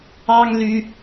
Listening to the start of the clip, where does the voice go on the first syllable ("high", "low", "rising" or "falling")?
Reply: high